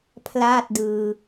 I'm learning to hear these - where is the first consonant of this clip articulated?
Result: lips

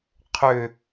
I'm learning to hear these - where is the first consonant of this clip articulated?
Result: uvula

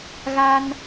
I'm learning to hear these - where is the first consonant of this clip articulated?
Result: velum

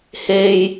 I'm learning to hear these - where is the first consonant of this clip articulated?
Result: throat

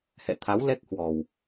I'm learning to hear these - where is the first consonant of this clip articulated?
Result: throat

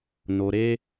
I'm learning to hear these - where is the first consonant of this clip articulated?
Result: tongue tip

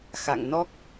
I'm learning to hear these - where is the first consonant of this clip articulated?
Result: velum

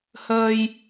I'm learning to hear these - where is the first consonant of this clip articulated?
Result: throat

